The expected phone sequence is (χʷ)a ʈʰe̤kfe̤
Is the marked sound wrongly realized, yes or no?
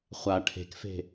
no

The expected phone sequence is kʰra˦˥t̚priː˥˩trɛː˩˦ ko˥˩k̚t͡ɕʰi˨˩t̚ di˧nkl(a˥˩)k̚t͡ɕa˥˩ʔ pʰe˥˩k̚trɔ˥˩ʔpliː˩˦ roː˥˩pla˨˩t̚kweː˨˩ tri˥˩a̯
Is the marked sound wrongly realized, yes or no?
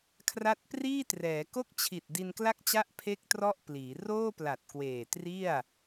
no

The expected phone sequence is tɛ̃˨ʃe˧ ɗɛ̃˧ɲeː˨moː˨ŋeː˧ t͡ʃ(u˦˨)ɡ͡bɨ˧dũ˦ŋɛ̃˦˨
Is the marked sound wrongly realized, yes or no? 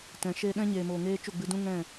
no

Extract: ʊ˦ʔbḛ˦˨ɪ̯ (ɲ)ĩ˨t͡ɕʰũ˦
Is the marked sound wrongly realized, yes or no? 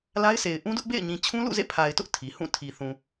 no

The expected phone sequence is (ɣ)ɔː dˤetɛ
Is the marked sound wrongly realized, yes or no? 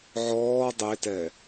yes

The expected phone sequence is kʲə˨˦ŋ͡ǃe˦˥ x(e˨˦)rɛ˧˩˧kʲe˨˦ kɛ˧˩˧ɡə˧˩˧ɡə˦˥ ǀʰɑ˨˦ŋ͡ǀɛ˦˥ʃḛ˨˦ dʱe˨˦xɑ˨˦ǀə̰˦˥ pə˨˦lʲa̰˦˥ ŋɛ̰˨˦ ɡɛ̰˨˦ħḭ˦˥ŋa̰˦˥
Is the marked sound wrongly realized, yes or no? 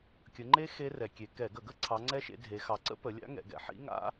yes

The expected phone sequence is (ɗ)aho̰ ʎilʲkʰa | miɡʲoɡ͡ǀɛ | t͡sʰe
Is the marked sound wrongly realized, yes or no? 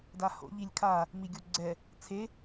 yes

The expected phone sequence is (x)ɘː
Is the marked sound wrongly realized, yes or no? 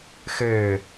no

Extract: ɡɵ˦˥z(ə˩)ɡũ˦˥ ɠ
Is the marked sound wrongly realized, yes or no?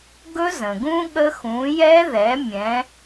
yes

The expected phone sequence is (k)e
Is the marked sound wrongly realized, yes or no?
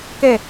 no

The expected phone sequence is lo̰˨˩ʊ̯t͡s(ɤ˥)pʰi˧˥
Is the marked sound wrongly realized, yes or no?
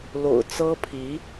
no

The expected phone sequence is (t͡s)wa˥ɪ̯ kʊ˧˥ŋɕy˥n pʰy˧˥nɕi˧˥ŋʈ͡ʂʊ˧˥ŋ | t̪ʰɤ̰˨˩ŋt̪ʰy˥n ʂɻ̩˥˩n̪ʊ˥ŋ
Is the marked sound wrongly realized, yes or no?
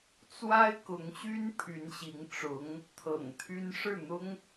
no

